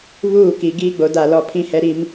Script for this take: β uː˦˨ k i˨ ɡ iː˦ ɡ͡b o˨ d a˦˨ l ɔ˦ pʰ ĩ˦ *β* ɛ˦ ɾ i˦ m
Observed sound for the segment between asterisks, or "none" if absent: h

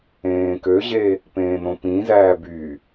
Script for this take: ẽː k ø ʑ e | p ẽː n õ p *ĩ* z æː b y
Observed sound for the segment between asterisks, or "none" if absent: ĩ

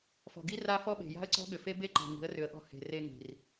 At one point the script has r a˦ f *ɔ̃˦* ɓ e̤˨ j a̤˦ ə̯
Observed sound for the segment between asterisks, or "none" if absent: ɔ˦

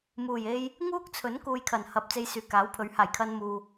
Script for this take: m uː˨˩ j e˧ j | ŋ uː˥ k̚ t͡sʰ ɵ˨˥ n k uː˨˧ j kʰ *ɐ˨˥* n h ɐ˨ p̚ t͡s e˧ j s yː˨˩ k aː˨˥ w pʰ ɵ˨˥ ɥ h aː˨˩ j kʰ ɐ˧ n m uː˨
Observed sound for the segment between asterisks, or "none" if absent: ɐ˨˩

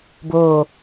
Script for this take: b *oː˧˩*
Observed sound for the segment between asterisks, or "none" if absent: oː˧˩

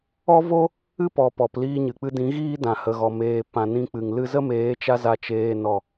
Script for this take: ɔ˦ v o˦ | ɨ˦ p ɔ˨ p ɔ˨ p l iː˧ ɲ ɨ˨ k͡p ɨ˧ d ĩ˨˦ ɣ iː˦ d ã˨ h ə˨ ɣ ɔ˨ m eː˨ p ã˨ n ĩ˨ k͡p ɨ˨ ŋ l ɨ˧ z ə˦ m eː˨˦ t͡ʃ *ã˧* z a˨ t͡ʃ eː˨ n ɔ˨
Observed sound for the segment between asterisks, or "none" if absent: a˧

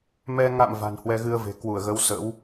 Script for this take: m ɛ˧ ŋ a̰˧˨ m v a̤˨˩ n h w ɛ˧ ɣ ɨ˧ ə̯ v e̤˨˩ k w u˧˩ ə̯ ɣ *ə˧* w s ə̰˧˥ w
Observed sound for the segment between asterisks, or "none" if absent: ə˨˦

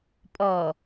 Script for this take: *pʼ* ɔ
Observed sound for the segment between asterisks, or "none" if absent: pʼ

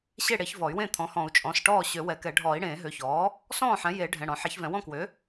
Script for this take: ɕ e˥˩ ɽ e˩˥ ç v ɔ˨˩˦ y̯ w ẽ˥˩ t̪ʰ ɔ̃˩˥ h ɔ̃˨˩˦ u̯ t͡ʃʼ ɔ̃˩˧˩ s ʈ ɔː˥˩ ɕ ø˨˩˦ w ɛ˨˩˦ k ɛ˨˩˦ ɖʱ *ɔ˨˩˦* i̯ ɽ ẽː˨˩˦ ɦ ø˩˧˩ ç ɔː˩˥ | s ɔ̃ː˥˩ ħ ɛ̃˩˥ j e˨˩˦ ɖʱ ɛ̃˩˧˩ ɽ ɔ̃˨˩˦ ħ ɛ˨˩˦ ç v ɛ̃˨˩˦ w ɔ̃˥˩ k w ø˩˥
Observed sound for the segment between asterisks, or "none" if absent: ɔː˨˩˦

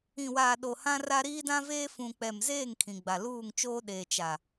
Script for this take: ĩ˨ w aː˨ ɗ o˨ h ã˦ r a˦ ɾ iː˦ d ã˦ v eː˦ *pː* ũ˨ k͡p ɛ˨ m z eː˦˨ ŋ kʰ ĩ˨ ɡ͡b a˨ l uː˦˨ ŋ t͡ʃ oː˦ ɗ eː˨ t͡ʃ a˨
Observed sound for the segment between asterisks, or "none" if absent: f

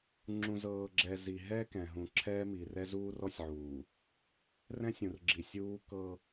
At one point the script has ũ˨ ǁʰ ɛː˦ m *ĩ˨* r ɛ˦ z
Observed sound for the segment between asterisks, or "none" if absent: i˨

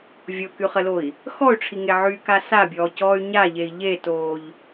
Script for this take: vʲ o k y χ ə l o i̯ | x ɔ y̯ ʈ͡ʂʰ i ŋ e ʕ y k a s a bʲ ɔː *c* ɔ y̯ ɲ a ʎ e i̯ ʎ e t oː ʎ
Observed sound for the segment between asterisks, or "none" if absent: c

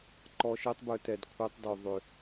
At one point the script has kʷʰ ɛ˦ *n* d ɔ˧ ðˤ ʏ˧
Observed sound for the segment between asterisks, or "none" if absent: tˤ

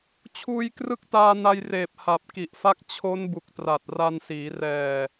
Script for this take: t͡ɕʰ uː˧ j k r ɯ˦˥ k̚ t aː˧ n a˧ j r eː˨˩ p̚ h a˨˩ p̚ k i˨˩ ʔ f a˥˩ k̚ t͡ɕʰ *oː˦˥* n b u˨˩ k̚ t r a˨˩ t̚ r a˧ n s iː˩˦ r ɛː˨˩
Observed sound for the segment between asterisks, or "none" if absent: o˦˥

